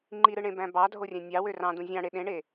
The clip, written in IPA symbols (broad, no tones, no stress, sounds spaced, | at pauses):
ŋ͡ǃ i ɾ ɯ ɳ ẽ b æ̃ b ɑ dʱ o rʲ æ̃ nʲ ɑ w ø r ɑ̃ d ũ zʲ ɑ̃ ɽ e ɗ ẽ ɳ e